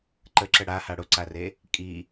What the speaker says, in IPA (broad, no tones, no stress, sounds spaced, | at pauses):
ǃ ə ǁ ə ɽ a h a ɽ ʊ ǀ a r e | kʼ i